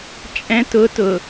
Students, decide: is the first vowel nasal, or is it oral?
nasal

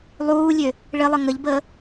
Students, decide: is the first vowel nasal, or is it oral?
oral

